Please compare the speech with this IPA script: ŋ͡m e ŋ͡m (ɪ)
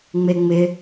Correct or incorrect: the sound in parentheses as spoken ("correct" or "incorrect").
correct